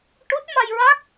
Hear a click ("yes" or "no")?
no